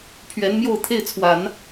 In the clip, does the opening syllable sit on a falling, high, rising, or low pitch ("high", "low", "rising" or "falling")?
rising